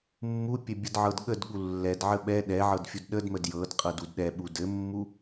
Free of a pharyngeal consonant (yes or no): no